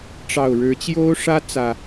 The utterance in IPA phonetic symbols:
ʈ͡ʂ ɑ˨˩ ʊ̯ ɻ ɻ̩˨˦ t͡ɕ j o˦ ʊ̯ ʂ ä˦ t͡s ä˨˩

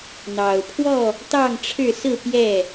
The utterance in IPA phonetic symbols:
n̪ ɑ˨˩ ʊ̯ pʰ w ɔ˥˨ | t̪ ɑ˥˨ ŋ ʈ͡ʂʰ ɻ̩˥˨ s ɹ̩˥˨ p j ɛ˥˨

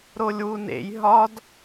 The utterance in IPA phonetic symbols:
ɾ o lʲ w u n ḛ j ɦ ɒ d

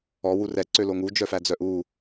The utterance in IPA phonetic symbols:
ɔ w u r ɛ ǀ ø l o ŋ u d͡ʒ œ f æ d͡z œ ʔ u

